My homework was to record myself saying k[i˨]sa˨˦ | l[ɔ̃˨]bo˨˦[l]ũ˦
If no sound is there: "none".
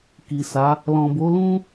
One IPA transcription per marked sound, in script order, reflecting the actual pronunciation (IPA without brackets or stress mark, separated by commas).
i˨, ɔ̃˨, l